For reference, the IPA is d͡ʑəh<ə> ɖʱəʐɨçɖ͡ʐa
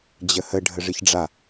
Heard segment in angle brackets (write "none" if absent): ə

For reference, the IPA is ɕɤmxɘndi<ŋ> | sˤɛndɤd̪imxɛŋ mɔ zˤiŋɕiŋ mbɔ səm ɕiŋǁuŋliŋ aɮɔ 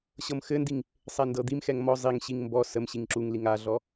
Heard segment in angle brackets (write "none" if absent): ŋ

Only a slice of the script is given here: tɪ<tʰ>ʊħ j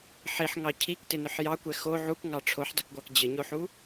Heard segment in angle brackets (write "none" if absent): n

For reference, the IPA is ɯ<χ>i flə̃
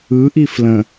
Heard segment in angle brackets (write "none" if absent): ʔ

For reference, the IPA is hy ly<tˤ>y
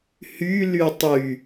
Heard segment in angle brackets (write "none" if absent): tˤ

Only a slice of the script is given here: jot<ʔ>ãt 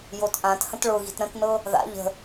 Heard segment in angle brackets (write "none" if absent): ʔ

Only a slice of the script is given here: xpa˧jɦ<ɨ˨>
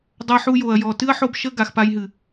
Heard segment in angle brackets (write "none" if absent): ɨ˨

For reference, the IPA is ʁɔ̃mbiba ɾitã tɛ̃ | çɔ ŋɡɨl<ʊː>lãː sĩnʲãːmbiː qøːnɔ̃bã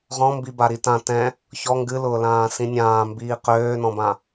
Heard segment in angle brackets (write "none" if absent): ʊː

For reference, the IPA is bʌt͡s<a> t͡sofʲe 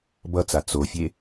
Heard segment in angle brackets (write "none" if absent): a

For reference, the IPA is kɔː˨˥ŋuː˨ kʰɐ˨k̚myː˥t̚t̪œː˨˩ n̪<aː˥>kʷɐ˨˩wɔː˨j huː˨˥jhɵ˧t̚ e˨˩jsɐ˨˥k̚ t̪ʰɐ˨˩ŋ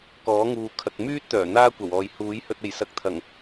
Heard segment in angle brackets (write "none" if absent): aː˥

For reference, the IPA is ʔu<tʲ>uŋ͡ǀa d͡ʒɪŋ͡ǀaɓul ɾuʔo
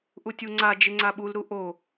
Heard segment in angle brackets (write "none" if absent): tʲ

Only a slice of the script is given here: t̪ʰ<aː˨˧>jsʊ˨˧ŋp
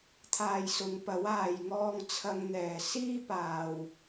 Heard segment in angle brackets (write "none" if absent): aː˨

